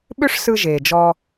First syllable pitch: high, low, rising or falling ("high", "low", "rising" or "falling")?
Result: high